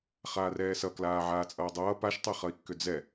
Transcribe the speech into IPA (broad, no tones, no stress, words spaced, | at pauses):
χaːrɛːsʌ klaːʕaːt͡sʼʌːdˤʌː paʃtˤeχʌi̯kːʏ d͡zɛ